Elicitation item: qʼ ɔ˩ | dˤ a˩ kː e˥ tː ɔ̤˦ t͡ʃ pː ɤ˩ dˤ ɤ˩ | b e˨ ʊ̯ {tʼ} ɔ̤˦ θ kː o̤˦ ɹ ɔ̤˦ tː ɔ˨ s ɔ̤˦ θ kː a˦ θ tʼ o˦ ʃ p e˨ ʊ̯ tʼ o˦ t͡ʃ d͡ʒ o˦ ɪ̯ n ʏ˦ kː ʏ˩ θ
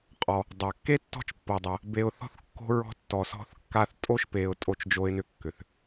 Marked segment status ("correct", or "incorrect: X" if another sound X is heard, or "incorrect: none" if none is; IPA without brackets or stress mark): incorrect: θ